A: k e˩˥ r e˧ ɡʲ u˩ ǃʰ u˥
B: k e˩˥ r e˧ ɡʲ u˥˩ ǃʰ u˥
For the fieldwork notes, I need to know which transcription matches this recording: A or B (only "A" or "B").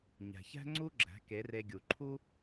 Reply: A